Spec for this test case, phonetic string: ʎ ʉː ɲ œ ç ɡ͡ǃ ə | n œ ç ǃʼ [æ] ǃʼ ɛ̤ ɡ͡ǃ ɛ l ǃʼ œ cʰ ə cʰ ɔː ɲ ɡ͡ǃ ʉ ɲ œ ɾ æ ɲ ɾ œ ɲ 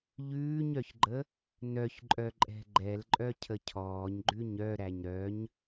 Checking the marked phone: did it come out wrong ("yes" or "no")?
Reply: yes